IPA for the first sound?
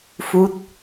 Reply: f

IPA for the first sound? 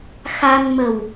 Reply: x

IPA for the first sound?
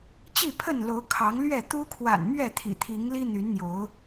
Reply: t͡ɕ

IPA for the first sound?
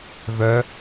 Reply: v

